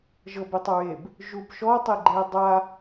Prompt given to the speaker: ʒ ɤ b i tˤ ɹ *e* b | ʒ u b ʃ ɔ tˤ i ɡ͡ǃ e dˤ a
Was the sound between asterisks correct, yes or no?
yes